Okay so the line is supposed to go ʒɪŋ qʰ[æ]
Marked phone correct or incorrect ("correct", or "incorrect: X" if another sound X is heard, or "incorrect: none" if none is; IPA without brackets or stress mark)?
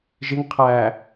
correct